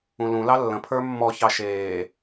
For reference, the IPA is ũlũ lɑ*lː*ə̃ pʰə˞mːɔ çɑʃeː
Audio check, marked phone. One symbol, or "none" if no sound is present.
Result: lː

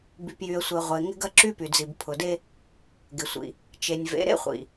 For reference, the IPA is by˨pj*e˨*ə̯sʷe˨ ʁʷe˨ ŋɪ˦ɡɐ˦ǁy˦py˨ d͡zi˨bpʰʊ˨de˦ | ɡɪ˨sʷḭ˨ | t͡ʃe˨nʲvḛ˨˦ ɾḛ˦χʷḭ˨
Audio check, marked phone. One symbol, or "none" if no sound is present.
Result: y˨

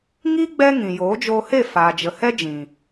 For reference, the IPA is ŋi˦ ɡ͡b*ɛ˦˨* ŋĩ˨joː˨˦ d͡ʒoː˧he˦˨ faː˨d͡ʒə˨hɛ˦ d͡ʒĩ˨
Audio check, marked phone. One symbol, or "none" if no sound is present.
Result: ɛ˦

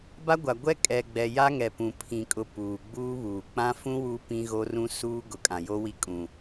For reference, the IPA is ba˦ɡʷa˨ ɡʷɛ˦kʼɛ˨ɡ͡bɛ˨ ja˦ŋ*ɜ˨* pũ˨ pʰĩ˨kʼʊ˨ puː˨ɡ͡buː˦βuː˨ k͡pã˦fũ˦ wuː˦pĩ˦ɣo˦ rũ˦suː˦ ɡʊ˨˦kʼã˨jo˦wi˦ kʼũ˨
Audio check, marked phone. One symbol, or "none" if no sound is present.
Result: ɛ˨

